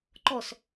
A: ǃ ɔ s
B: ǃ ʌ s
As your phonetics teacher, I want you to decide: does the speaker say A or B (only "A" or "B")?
A